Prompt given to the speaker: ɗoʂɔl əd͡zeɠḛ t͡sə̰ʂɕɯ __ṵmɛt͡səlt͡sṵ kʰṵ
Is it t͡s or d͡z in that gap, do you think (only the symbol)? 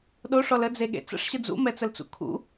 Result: d͡z